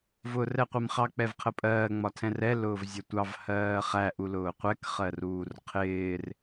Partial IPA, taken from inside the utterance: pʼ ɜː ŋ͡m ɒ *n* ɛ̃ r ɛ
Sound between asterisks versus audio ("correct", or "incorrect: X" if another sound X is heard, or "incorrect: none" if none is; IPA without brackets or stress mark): incorrect: tʰ